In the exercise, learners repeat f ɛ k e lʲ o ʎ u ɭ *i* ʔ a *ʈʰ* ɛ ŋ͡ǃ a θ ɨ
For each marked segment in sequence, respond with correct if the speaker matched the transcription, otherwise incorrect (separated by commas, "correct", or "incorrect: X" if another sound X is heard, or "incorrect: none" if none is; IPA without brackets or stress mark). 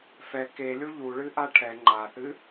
incorrect: ɨ, correct